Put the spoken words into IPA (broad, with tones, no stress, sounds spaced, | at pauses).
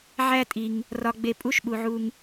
ʕ æ˦ tʼ i˨ ŋ | r ɒ˨ ɡ͡b e˨ pʼ u˦ ʃ ɓ u˨ ʕ u˧ ŋ